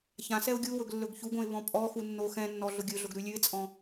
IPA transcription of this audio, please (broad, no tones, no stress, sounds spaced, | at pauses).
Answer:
ç ã s ɛ ʊ̯ ɡʲ u w ɵ ɡ lː ɵ ɡ ç u ɡ õ ɪ̯ β ɔ̃ pʼ ɔ x u nː o x ɛ̃ nː ɔ ɮ ʊ ɡʲ ɵ ɮ ʊ ɡ ɾ ʉ lʲ ʉ ɪ̯ t͡sʼ ɔ̃